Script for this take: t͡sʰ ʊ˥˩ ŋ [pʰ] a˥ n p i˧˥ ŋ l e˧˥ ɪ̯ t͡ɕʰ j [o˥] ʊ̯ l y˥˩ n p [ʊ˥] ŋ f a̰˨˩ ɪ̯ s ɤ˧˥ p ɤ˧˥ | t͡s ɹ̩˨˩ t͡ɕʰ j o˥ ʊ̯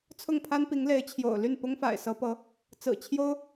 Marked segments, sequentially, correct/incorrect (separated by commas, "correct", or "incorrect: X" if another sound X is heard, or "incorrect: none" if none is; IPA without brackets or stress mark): correct, incorrect: o̰˨˩, correct